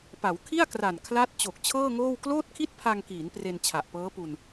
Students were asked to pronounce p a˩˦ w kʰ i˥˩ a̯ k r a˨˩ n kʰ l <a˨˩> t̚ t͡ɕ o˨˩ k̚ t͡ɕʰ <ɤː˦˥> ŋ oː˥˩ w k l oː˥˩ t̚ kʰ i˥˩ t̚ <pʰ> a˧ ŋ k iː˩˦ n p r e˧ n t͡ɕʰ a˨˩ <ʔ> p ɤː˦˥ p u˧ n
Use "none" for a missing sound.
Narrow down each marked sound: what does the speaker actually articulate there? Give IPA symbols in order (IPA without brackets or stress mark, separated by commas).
a˦˥, ɤː˥˩, pʰ, ʔ